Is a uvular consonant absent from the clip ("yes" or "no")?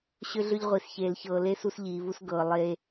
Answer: no